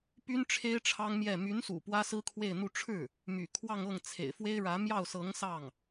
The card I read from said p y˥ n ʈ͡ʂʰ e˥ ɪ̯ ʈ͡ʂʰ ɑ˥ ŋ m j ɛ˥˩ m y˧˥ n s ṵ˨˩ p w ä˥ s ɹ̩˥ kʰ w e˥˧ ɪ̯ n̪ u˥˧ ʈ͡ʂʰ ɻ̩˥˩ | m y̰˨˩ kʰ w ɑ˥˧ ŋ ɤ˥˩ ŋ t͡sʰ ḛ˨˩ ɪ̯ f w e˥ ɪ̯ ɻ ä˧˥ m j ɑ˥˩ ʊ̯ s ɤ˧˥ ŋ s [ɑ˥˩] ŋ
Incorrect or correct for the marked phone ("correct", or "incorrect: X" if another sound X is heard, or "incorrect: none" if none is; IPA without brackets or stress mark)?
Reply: correct